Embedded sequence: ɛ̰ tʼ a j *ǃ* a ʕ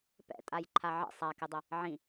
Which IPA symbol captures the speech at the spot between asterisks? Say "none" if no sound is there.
ǃʰ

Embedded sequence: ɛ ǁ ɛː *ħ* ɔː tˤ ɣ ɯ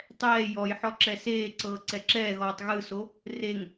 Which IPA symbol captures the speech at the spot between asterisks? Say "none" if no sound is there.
ɣ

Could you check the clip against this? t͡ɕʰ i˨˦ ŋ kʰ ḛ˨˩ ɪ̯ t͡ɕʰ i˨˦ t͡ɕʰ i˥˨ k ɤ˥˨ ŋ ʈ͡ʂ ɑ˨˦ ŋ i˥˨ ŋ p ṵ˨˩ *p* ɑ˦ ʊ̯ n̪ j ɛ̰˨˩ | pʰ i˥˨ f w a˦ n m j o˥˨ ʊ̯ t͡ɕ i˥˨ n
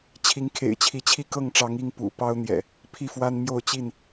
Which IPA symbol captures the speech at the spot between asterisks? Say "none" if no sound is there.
p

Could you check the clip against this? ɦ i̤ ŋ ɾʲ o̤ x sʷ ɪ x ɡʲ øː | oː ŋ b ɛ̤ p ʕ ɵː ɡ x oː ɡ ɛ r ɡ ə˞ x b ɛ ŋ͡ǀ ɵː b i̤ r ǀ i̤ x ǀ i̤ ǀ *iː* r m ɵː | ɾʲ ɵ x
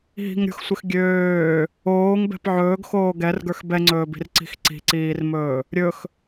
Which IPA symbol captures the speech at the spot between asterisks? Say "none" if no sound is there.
iː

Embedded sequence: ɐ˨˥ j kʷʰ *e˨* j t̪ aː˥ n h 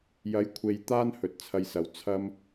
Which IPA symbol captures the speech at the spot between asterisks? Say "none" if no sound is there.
e˨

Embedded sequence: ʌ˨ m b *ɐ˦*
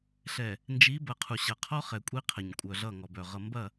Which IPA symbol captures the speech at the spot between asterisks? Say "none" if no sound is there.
ɐ˦˨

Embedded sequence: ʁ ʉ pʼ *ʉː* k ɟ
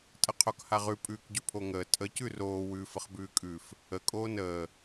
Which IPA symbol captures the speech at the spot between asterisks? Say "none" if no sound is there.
ʉː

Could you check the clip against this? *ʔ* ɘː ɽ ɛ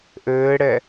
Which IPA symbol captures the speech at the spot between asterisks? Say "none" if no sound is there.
ʔ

